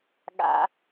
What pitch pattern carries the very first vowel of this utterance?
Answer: high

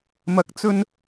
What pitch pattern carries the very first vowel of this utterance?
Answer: rising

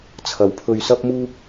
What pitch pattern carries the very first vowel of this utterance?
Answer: low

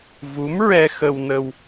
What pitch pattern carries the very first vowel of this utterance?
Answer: rising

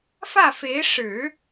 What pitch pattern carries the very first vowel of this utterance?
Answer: falling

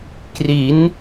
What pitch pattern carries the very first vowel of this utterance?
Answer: rising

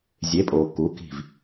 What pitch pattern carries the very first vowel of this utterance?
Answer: rising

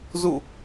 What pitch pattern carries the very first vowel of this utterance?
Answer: falling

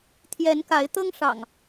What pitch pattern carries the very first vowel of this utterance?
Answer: rising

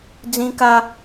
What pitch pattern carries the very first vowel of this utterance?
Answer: high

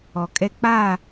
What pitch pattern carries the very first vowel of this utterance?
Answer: low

